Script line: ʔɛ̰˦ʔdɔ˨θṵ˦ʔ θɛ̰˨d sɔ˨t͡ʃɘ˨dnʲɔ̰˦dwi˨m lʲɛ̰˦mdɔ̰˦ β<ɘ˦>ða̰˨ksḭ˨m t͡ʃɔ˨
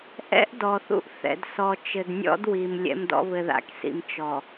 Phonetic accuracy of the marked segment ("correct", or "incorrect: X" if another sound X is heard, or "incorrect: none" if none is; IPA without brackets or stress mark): incorrect: ɘ˨